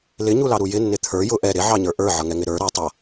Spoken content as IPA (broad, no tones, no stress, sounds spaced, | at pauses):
l ɪ ɲ u l ɑ ɾ u j ɪ nː ɪ t̪ʰ ə˞ j ʊ ʔ ɛ ɾ ɪ ʕ ɑ ɲ ə˞ ʔ ə˞ ʕ ʌ ŋ ɛ ŋ ɪ ɾ ə˞ ɾ ʌ tˤ ʌ